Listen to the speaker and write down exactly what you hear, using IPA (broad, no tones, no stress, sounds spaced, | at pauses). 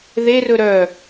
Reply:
ð e r ɵ ɾ œ